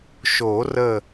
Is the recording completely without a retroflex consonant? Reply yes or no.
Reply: yes